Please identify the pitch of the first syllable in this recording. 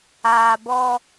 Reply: low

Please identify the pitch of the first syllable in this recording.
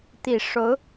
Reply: low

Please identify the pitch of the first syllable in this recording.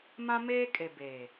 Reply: high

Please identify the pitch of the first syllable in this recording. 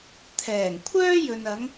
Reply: low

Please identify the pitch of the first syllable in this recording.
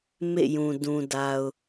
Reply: falling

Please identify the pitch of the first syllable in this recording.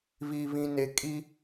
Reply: low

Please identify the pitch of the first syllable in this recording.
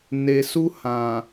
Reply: low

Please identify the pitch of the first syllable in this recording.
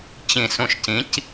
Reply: low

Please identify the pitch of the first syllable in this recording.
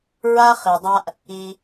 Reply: high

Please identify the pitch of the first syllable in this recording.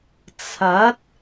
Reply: rising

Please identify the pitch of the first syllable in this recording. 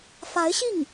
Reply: rising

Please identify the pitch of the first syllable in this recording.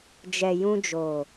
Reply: low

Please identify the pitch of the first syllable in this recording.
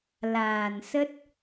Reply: low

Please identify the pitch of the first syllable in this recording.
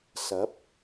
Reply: rising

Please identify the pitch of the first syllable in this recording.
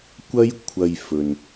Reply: high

